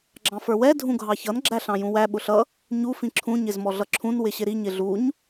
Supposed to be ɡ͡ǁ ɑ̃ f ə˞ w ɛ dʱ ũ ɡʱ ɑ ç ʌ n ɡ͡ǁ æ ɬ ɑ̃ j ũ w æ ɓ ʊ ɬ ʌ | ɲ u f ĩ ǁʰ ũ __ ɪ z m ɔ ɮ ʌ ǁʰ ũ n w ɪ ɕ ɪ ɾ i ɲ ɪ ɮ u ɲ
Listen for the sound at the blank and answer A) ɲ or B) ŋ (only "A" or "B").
A